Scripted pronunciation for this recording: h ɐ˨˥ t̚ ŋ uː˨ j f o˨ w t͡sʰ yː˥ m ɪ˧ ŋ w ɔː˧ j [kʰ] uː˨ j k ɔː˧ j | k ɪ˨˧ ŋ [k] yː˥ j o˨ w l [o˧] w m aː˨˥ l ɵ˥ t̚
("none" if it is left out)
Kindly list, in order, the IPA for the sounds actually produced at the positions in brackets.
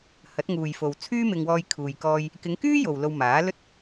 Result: kʰ, k, o˧

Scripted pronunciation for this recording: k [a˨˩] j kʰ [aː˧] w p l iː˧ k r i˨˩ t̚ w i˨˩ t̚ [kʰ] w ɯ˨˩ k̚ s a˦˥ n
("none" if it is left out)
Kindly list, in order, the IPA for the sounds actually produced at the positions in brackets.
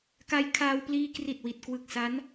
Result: a˧, aː˧, k

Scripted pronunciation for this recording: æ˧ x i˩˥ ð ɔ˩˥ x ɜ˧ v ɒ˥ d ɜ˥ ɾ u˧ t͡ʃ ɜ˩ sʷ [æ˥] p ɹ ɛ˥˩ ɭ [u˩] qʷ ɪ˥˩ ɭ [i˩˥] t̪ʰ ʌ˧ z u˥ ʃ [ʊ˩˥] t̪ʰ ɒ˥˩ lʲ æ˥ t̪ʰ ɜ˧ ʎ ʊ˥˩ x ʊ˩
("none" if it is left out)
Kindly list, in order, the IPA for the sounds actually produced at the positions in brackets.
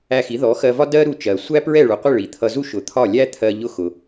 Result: æ˥, u˩, i˩, ʊ˩˥

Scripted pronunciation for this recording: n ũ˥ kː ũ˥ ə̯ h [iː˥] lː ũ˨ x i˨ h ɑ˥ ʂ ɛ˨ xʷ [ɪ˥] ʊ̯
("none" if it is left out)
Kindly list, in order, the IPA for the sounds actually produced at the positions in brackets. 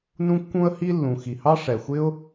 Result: i˥, ɪ˥

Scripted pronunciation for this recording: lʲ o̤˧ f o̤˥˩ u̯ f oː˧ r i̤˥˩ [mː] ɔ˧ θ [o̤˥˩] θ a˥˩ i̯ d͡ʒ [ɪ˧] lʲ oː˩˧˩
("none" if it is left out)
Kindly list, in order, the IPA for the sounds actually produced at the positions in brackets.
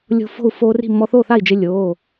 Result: mː, o˥˩, ɪ˧

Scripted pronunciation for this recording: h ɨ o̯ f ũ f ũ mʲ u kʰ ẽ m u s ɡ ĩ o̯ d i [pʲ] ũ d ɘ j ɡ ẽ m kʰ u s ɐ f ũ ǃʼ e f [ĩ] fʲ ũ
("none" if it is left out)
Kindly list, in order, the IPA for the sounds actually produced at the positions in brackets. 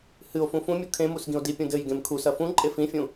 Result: pʲ, ĩ

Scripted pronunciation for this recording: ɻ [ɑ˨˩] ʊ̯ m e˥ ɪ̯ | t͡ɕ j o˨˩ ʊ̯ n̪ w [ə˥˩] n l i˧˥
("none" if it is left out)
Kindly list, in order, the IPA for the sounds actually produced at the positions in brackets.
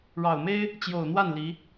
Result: ɑ˨˩, a˥˩

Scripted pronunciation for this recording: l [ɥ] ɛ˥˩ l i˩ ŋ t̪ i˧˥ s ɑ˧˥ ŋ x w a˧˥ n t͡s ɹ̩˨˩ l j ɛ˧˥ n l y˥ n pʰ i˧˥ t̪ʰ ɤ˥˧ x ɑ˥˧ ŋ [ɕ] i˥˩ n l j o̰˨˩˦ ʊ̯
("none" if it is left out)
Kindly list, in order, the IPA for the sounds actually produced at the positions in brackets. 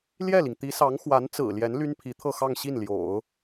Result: j, ɕ

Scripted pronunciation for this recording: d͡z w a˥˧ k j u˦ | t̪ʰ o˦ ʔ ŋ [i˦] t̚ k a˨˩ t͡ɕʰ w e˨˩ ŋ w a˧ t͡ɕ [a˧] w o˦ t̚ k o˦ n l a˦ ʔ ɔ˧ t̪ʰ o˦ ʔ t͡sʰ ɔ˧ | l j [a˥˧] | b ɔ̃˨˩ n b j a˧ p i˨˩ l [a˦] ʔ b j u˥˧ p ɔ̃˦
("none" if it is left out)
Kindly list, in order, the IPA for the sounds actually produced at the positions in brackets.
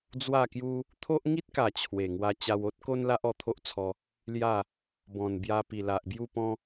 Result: i˦, a˧, a˥˧, a˨

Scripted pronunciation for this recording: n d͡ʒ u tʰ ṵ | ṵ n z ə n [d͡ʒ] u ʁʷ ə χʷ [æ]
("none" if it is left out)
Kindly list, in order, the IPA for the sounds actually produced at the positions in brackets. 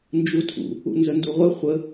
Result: d, ə

